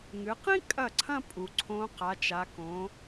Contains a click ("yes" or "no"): yes